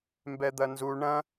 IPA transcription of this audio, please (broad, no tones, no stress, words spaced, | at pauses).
mbɛd̪ɐnzu ɳɐ̃